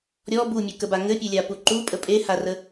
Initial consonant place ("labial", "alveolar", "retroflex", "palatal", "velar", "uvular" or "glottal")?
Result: alveolar